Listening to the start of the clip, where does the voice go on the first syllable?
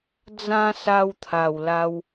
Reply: high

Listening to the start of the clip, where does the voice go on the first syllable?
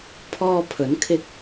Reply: high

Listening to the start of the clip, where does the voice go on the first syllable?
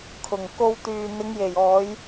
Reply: low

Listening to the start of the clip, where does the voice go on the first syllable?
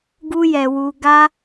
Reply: high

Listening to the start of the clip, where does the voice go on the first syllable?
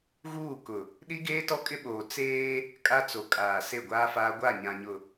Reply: falling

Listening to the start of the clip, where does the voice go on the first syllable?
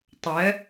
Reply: rising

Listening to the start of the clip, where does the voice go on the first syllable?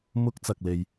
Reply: high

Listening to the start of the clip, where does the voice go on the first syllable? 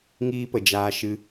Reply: high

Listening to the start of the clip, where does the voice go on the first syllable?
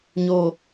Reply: low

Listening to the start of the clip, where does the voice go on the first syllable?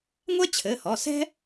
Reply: high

